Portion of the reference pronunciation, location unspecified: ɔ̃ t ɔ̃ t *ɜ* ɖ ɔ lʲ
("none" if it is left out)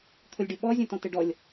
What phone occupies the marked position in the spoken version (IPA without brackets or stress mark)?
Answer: ɛ